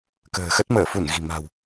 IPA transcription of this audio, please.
kə̤ː˨˩xə˦˥t̚ məː˧˩fu˧˩n ɣi̤˨˩ ma̤˨˩w

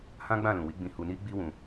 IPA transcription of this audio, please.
hã˦ɡ͡bã˦˨lũ˨wi˨˦ ɡ͡bĩ˧hu˧ ni˦ɡ͡bi˦wũ˧

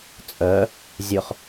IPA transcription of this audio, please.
t͡sʼœ | zʲɵχ

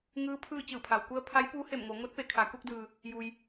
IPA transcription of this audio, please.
ŋɯː˧˥pʰɯː˥˨ t͡ɕɯː˧˩pʰa˩wku˧ə̯ pʰa˧˥jpuː˧˥he˧˩mŋo˩˧ ŋo˧˥t̚pe˩˧ kʰa˩ku˥˨k̚dɯː˩ | ju˩j

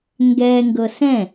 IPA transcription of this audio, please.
ŋɡɛ ŋɡɤsɛ̃

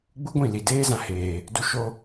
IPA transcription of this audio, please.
ɡ͡bu˦ɡʷĩ˦˨li˨ deː˦zã˧heː˨ | du˧ ʃo˧

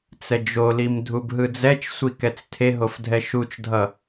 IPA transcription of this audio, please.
t͡sɛd͡ʒolim dʱubɦɯd͡zɛt͡ʃsʷi kɛt͡stʰeɦof dʱɛʃut͡ʃdʱʌ

